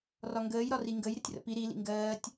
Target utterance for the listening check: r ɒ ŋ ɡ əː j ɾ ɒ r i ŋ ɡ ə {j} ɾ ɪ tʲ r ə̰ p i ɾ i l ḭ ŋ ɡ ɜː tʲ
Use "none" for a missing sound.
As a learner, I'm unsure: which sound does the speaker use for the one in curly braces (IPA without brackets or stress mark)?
j